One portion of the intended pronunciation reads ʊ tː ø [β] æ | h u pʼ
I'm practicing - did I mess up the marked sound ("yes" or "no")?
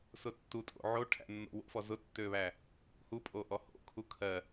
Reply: no